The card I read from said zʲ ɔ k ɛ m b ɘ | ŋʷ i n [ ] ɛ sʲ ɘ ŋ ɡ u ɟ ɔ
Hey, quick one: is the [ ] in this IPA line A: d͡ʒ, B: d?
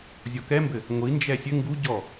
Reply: A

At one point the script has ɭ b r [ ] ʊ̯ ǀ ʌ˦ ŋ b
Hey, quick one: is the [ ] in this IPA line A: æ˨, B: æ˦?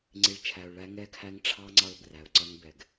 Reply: A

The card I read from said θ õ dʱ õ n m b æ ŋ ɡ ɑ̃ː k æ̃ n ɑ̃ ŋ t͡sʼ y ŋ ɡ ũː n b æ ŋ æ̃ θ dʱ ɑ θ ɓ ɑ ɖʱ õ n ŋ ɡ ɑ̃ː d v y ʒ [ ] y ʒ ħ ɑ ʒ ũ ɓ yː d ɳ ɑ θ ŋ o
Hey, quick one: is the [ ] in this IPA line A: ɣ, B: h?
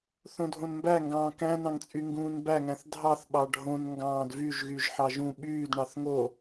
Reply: A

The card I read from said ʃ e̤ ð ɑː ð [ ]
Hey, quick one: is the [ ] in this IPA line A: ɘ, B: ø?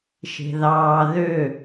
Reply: B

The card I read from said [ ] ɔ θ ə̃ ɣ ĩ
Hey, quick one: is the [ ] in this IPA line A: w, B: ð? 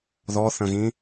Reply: B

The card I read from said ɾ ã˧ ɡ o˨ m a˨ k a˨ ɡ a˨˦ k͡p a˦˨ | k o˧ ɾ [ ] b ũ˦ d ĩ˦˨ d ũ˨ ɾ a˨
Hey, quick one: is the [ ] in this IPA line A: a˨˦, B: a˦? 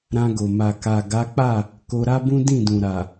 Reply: B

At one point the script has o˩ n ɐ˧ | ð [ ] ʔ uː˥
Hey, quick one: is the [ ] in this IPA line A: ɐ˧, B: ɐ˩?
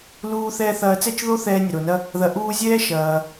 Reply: A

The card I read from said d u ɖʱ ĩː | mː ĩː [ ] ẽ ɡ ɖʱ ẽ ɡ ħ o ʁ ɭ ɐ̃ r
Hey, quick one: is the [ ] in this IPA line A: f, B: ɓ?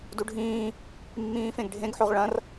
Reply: A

